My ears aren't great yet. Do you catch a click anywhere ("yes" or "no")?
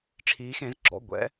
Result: yes